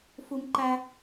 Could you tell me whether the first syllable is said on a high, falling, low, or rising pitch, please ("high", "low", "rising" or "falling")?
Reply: high